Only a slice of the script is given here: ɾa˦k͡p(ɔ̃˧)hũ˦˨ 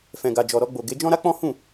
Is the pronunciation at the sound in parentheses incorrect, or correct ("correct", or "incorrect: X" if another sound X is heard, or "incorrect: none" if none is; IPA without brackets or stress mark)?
incorrect: ɔ̃˦